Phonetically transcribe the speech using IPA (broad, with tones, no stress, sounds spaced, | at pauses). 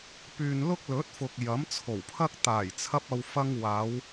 p yː˨ n l ʊ˥ k̚ l ɵ˨˥ t̚ f ʊ˨ k̚ j ɐ˨˥ m t͡sʰ o˨˩ w pʰ ɐ˥ k̚ t̪ aː˨˩ j t͡sʰ ɐ˧ p̚ ɐ˧ w f ɐ˧ ŋ w aː˨˧ w